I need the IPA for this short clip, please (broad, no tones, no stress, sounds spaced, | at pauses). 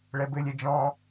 ɭ ɛ b ɘ lʲ ɛ d͡ʒ ɔ̃